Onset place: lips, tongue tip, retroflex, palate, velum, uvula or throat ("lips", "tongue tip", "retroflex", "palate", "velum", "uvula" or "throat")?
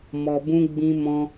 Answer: lips